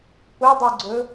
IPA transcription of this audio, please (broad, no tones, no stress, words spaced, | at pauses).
pʊdˤuɡ͡ǀɵ